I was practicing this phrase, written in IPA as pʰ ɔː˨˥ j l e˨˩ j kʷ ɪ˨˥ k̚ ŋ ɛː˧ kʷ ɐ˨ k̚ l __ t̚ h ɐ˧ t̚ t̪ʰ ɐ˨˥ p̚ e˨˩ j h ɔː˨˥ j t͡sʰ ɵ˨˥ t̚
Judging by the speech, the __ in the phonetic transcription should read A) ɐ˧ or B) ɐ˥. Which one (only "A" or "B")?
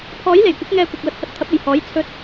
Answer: A